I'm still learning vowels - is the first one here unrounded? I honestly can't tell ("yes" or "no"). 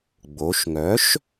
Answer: no